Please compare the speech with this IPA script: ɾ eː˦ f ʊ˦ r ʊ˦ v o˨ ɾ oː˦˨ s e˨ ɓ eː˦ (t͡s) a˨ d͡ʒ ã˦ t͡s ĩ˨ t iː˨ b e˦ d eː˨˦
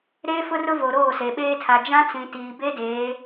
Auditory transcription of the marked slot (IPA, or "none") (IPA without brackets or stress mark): tʰ